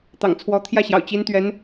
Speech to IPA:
t̪ ɑ̰˨˩ ŋ t͡sʰ w ɔ˧˥ t̪ʰ j ä˥˩ ɕ j ɑ̰˨˩ ʊ̯ t͡ɕ i˧˥ n t̪ ɥ ɛ˧˥ n

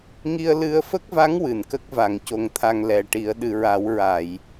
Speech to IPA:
ŋ i˧ ə̯ l ɨ˧ ə̯ f ə˦˥ k̚ v a˧˥ ŋ w ɨ˨˩˨ n k ə˦˥ k̚ v a˨˩˨ ŋ c o˨˩ ŋ t̪ʰ a˨˩ ŋ l ɛ˨˩ ʈ i˨˩˦ ə̯ ɗ ɨ˨˩˨ ɹ a˨˩˦ w ɹ a˨˩˨ j

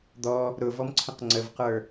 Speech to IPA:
d̪ ɔ | ɾ ʊ v ɔ m ǀʰ ə̃ q ŋ͡ǀ ə v q ə˞

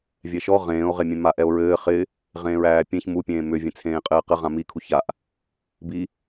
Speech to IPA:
vʲ ɛ ʃ ɔ ʁ ẽː o̯ ʁ e mʲ ẽ m a ʔ ɛ o̯ ɹ ɘː χ ɪ | ʁ ẽː ɹ æː pʲ ẽ ç m u pʲ ẽː m ʏ vʲ ẽ t͡sʰ ẽː qʼ ɘː q ɘ ʁ ã m i kʰ u ç a ʔ | b i

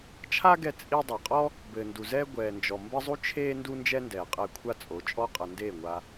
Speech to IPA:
t͡ʃʰ a˦ ɡ ɛ˧ t͡sʼ i˧ dˤ ɐ˨ qʼ ɔ˦ | b ɘː˨ n d u˨ z ɛː˦ ɡʷ ɛː˨ n d͡ʒ ɔ˨ m b ɘ˦ zˤ u˦ t͡ʃʰ eː˦ n d u˦ n d͡ʒ ɛ˦ n d ɛː˨ qʼ ɛ˧ kʷʰ a˦ t͡sʼ o˨˦ t͡ʃʼ ɔ˦ qʼ ɐ˧ n d eː˦˨ ŋʷ a˧

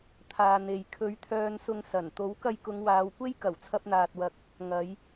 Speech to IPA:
t̪ʰ aː˨ n̪ e˨ j kʰ ɵ˨˧ ɥ t̪ʰ œː˨ n s ʊ˨ ŋ s ɐ˨˩ n t̪ o˨˥ w k ɐ˧ j k ʊ˨˧ ŋ w aː˨˧ w kʷ e˥ j k ɐ˨˩ w t͡sʰ ɐ˧ p̚ n̪ aː˨ t̚ w ɐ˨ k̚ | ŋ ɐ˨˧ j

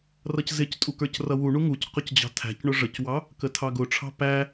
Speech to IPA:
r ʌ c z ɪ c tʼ u k ə˞ c r ʌ w u ɳ u ŋ u c q ʊ c d͡ʑ ɑ̤ tʰ æ̤ c ɳ ʊ ʐ ə c w ɑ | k ə tʰ ɑ ɡ ʊ ʈ͡ʂʰ ɑ̤ p æ

